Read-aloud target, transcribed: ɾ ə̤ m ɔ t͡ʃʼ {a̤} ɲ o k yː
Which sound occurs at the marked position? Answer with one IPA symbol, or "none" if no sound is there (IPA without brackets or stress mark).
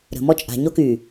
a̤